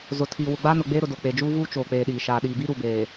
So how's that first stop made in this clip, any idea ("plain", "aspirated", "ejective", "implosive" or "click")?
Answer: aspirated